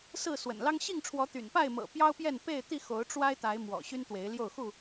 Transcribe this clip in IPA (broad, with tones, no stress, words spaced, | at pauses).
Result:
sɹ̩˥˨swə̰˨˩nlɑ˦ŋ ɕi˥˨ŋʈ͡ʂʰwɔ˨˦ t̪y̰˨˩npa˥˨ɪ̯mɤ̰˨˩ pjɑ˦ʊ̯pjɛ˥˨n pe˥˨ɪ̯ t̪i˥˨ xo˨˦ʊ̯ʈ͡ʂwa˦ɪ̯t̪a˨˦ɪ̯ mwɔ̰˨˩ ɕy˦nt̪we˨˦ɪ̯ljo˥˨ʊ̯ xu˥˨